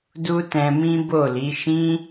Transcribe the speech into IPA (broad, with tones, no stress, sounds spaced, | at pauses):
d u˦ t ɛ̃˧ m ĩ˦ b o˦˨ l i˨˦ ʃ ĩ˦